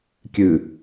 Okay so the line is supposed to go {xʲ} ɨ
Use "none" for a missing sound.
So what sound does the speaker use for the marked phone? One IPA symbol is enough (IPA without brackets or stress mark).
kʲ